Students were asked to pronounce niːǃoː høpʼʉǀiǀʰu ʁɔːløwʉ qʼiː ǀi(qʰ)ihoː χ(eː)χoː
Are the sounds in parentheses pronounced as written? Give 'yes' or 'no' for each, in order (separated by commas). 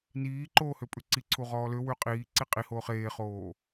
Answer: no, yes